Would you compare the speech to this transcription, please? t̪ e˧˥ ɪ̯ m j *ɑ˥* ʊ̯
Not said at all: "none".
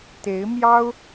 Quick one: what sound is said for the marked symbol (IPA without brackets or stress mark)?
ɑ˥